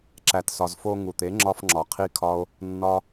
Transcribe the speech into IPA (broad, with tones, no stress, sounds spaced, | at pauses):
ǁ æ˨ t s ɒ˨ z f o˧ ŋ u˨ t̪ e˨˦ ŋ͡ǁ ɒ˧ f ŋ͡ǁ ɒ˨ qʰ i˦ kʰ ɒ˦ o̯ | nː ɒ˦